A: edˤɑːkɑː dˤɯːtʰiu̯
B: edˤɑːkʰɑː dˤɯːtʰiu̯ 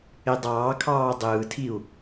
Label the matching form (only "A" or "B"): B